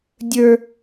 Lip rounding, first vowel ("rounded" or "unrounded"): unrounded